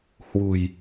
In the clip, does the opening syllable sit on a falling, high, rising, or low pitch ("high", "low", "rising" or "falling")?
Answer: low